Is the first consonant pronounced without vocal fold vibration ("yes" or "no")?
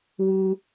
no